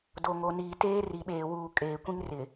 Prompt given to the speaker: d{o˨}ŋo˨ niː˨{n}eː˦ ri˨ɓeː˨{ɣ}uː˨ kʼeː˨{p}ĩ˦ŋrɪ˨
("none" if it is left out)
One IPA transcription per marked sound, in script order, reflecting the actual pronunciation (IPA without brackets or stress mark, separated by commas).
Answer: o˨, t, w, kʷ